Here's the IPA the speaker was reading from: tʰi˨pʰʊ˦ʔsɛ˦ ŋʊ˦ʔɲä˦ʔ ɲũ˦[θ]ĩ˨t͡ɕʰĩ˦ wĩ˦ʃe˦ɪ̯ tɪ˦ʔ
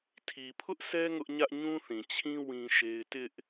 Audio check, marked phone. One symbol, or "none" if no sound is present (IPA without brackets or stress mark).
θ